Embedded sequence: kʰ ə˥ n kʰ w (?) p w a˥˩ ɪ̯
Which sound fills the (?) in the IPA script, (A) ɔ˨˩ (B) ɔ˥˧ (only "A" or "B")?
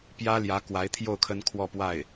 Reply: B